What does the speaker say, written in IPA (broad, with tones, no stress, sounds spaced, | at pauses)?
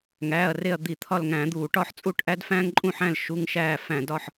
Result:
ŋ æː˩˧˩ ɐ̯ r e˦˨ ɐ̯ d̪ i˧˩˧ t̪ʰ ɒ˦˨ l ŋ æ̃˧˩˧ d̪ uː˧˩˧ ʈ ɒ˦˨ ħ t͡sʼ u˦˨ ʈ ʔ æ˦ d f æ̃ː˦ ŋ ǃʼ ũ˦˨ ħ æ̃˦˨ l ʃ u˦ ŋ ʃ æː˦˨ f æ̃˧˩˧ d ɒ˦˨ ħ